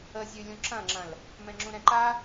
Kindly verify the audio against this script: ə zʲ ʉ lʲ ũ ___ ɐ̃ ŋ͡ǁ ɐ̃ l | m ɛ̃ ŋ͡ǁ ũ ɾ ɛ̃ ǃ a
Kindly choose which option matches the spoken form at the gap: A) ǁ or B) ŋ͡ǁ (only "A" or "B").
A